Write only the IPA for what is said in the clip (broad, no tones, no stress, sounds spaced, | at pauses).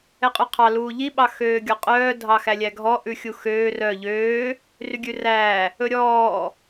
ɛ qʼ ʉ qʰ ɑ l uː ʎ i ɓ ɑ x øː ɡʲ ɔ qʼ œː dʱ ɑ x æ lʲ æ ɡʱ ɔ ʔ ʉ xʲ u x øː r œ ʎ øː | r y ɡʲ ʉ r æː | ɵ ɾʲ ɔː